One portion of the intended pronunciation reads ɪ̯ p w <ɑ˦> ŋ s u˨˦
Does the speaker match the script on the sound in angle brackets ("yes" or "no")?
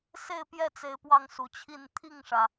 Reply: yes